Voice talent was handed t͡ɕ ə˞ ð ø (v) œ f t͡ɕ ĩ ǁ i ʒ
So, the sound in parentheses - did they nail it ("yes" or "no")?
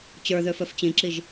no